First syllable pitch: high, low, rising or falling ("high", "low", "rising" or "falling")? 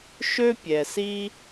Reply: high